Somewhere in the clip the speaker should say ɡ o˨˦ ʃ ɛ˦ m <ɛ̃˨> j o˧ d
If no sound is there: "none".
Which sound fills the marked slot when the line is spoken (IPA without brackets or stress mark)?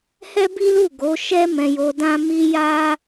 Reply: ɛ̃˧